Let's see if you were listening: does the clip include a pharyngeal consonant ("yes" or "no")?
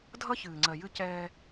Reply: no